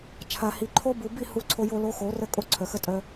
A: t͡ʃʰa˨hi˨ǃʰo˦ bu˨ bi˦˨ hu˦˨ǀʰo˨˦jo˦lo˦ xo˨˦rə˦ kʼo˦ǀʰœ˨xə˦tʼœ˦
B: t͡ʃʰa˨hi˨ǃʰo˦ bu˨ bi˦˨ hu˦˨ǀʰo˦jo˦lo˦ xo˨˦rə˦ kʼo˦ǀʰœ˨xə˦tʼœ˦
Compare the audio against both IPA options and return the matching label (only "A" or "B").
B